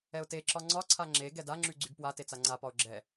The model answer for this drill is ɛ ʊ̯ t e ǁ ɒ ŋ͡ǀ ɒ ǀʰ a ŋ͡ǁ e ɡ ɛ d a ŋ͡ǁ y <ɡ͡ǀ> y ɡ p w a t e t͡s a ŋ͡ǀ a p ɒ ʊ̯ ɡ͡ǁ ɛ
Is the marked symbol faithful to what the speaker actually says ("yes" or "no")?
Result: yes